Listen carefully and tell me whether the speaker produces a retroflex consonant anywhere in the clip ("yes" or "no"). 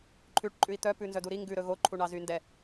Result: yes